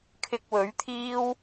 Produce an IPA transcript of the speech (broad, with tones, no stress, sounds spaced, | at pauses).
kʰ ɪ˧ k̚ w ɵ˨˥ ɥ t̪ʰ iː˥ w